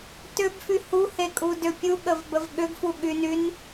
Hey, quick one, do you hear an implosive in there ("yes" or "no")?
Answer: yes